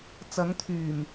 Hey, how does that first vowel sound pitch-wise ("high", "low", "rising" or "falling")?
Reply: rising